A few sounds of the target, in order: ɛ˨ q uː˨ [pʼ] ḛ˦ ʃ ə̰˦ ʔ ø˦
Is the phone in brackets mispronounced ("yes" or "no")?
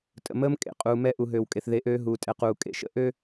yes